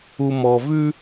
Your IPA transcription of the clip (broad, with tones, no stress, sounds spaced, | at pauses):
u˨ m ɔ˨ v ʉ˦